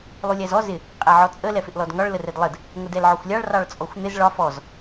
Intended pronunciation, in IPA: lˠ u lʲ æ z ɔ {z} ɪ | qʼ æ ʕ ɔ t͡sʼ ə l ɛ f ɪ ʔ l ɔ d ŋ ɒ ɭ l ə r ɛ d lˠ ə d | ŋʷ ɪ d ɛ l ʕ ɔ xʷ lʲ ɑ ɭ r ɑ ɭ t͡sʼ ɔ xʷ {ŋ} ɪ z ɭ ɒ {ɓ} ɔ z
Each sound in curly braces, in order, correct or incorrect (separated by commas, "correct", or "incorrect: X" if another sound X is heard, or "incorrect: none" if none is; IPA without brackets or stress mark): correct, incorrect: n̪, incorrect: f